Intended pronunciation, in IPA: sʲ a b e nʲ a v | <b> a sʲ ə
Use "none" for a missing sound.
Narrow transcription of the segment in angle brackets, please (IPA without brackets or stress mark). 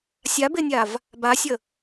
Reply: b